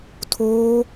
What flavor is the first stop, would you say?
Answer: aspirated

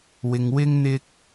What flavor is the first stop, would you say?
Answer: plain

